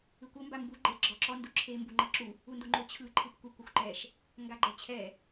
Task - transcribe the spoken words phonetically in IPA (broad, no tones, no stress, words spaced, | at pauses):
ɯkʷɤ mbambu ɡ͡ǃe ɡ͡ǁɔǁɔ nduǁʰe mbuŋ͡ǃɤǁu | undoŋ͡ǃo t͡ɕʰɯ ǃʰɯpkʷi kʷɤxʷǃɛʃ | ŋɡaɡ͡ǃɛt͡ɕʰɛ